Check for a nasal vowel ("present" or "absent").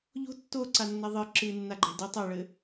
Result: absent